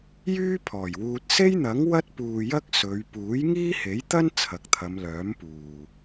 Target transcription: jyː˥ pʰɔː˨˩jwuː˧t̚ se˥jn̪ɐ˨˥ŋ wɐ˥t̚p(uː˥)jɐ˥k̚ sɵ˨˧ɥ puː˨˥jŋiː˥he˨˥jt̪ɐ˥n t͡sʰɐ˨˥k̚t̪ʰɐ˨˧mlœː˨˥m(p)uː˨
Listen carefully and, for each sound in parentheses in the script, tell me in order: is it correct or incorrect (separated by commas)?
incorrect, correct